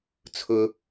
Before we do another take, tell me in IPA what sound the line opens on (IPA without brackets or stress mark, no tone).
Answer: t͡sʰ